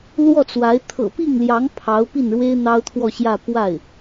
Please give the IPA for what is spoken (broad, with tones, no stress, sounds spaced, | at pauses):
l w ɔ˥˩ t͡s w a˧˥ ɪ̯ t̪ʰ ɤ̰˨˩ p i˥˩ ŋ l j ɑ˧˥ ŋ pʰ ɑ˧˥ ʊ̯ p i˥˩ n ɻ w e˥ ɪ̯ n̪ ɑ˥ ʊ̯ t̪ʰ w ɔ˥˧ ɕ j ä˥˧ p w a˥˩ ɪ̯